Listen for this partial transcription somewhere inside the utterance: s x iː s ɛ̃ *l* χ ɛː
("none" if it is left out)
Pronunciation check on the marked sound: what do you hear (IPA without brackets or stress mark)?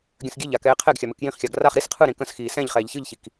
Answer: ʎ